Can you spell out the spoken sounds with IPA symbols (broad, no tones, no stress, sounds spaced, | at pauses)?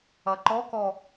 ɐ ǃ ɔ k ɔ